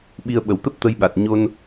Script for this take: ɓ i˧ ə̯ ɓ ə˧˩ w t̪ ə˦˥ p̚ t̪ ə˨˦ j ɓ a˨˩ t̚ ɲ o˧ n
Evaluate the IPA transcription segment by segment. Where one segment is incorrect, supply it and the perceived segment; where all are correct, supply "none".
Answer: none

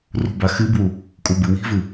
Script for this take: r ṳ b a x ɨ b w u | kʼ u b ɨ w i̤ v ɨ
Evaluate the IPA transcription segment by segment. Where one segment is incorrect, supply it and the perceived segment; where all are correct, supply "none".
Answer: none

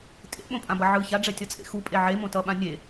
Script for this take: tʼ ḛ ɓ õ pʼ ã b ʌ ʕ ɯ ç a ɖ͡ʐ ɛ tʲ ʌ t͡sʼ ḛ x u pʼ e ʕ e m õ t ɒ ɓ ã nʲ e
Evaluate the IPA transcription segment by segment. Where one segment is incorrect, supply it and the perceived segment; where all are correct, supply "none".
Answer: ɒ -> ʌ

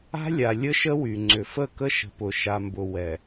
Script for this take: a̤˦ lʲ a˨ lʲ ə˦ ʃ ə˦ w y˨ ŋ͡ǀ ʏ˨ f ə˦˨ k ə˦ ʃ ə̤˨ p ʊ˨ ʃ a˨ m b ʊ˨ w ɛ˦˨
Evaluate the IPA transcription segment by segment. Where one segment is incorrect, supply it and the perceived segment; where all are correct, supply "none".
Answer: ɛ˦˨ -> ɛ˨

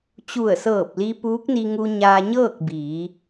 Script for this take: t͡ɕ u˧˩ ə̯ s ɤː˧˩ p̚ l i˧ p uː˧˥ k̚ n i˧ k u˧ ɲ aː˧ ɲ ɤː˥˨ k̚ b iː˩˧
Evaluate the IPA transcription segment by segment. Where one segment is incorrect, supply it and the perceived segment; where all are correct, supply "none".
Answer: k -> ŋ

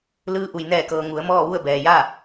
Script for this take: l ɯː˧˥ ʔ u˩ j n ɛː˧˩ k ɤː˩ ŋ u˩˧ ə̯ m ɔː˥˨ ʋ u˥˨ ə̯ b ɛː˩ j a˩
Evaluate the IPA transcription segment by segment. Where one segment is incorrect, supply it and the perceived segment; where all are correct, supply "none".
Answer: a˩ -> a˥˨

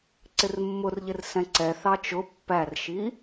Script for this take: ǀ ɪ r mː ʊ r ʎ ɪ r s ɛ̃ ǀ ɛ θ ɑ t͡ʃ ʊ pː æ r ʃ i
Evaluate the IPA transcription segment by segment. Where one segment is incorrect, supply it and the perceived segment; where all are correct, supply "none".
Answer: none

